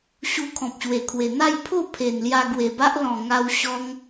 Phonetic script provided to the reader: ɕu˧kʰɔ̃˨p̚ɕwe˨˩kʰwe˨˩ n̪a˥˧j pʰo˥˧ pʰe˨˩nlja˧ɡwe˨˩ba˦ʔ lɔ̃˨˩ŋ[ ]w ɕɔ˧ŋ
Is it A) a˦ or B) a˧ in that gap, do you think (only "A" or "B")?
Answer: B